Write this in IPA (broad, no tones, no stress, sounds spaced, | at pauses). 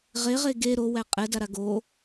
ʁ e ʁ e ɡ e ɾ o w æ qʼ ɛ d a ɾ a ɡ o